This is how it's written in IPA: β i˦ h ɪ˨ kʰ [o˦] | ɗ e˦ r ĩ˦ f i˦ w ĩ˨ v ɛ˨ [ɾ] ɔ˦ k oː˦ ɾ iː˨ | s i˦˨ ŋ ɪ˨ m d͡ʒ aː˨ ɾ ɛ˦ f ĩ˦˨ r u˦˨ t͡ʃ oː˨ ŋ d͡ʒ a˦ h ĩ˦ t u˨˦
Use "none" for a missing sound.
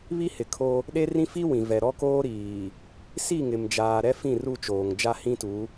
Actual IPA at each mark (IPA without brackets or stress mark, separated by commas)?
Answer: o˦, ɾ